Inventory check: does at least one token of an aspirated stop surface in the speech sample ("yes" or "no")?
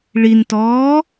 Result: no